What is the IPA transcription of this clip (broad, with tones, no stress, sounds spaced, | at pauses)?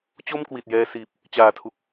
t͡ɕ o˥˩ m k w i˨˩ t̚ j ɛː˧ s iː˨˩ p̚ | t͡ɕ aː˨˩ tʰ u˨˩ k̚